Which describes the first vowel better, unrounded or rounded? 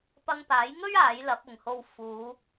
unrounded